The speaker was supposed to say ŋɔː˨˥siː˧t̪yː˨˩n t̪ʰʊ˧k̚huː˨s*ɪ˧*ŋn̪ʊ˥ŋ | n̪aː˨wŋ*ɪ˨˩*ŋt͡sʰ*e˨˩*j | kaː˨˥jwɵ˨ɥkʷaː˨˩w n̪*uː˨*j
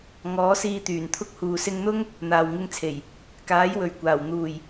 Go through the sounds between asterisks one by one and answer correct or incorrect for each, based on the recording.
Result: correct, incorrect: ɪ˧, correct, incorrect: uː˨˩

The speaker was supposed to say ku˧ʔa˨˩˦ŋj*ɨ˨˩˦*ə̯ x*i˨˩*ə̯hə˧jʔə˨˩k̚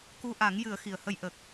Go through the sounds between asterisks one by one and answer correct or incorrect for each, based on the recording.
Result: correct, correct

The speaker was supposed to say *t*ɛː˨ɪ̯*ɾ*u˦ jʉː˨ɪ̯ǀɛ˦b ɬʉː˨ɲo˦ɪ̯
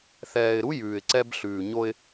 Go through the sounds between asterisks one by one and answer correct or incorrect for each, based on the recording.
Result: incorrect: θ, correct

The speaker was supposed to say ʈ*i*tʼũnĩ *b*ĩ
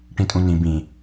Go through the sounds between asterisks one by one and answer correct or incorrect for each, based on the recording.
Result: incorrect: ĩ, correct

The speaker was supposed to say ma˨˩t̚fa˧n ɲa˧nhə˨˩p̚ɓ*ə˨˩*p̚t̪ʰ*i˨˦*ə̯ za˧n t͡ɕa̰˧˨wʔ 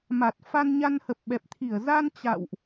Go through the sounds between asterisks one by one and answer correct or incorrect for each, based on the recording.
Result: incorrect: ɛ˨˩, incorrect: i˧˩

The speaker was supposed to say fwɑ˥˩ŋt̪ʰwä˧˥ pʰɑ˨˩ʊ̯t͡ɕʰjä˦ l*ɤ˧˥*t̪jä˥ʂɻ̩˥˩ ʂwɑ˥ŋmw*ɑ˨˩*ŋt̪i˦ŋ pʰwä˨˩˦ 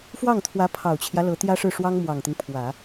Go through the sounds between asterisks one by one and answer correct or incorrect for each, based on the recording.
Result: correct, correct

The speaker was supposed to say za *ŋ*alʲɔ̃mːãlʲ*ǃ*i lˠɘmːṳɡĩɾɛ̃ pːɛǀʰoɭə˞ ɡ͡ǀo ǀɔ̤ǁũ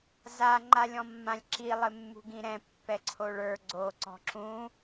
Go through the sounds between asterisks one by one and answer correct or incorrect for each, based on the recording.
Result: incorrect: ŋ͡ǃ, incorrect: ǁ

